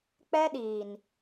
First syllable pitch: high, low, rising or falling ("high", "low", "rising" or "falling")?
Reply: high